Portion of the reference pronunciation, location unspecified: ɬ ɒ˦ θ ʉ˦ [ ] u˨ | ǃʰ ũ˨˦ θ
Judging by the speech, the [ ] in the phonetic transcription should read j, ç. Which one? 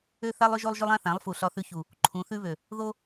ç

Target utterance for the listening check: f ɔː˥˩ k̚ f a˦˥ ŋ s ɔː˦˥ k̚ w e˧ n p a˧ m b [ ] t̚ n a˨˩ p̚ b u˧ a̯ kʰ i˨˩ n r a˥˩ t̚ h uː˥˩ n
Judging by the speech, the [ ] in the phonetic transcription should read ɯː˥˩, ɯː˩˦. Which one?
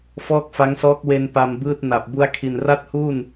ɯː˥˩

